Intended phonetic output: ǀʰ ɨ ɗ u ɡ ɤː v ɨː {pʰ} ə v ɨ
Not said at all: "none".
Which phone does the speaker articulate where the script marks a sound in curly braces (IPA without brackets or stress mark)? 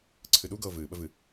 ɓ